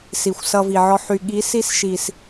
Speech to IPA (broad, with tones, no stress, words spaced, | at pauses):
si˨xʷsʌ˧vi˨ʕɔ˧ ħy˨ɠi˨˦si˧sʃi˨s